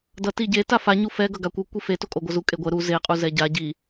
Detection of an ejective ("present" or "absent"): present